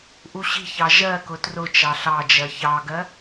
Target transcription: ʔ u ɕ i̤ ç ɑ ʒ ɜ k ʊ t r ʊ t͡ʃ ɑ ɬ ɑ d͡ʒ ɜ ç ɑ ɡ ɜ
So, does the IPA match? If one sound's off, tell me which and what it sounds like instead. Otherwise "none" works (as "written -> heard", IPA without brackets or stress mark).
none